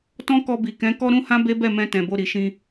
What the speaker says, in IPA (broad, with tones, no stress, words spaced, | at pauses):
tɔ̃˦kɔ˧bi˨kɛ̃˨˦ kɔ˦ɾũ˦hã˦ be˦bɛ˦˨mɛ̃˧ tɛ̃˨bo˧ɾi˨ʃĩ˧